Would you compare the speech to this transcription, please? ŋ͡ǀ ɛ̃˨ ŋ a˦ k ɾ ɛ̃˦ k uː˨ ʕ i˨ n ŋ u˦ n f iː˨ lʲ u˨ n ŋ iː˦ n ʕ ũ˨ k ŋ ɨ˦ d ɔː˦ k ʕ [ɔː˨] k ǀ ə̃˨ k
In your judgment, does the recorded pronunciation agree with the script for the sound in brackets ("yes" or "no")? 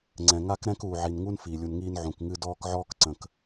no